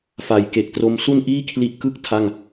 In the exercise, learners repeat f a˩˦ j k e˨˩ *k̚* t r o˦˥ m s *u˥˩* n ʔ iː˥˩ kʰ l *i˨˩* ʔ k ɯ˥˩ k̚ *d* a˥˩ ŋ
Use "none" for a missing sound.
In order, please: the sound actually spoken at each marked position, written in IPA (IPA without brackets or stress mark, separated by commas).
k̚, u˥˩, i˦˥, tʰ